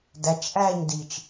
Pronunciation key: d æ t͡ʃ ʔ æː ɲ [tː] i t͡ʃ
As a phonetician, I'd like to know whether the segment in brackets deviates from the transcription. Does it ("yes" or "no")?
yes